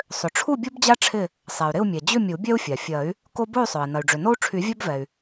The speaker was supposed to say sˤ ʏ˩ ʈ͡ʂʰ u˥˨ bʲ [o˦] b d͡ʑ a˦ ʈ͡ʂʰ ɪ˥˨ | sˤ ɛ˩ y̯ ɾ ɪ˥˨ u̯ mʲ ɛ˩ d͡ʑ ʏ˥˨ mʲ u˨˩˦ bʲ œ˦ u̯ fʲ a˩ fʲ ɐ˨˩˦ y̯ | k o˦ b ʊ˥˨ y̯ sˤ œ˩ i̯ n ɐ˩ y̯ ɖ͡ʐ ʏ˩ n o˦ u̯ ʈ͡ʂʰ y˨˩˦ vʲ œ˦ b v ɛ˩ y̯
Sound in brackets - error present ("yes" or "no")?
no